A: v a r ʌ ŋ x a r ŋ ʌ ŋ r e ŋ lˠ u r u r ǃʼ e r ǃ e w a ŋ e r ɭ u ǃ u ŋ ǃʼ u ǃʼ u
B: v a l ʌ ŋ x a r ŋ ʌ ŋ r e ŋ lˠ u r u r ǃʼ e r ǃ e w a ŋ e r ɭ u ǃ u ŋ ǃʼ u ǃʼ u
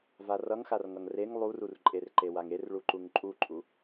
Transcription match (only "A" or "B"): A